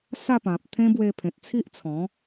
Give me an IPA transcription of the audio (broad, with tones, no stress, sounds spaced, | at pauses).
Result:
s a˥˧ p ã˨ p̚ t̪ʰ ẽ˦ b w e˧ pʰ ẽ˨ t̚ t͡sʰ i˦ ʔ t͡sʰ ɔ̃˨˦